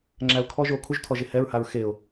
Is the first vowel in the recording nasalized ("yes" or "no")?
no